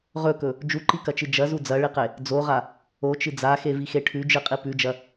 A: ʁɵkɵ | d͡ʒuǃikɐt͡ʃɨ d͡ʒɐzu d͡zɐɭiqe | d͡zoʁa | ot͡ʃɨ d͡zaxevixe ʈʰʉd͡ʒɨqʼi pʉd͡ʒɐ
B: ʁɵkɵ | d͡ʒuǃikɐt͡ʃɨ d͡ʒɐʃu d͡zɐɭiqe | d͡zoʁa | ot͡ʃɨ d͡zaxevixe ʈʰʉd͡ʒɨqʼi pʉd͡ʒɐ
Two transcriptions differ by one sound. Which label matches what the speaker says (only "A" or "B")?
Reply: A